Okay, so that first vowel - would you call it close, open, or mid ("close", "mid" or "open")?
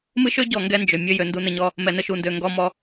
close